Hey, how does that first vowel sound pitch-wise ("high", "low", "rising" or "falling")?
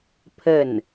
falling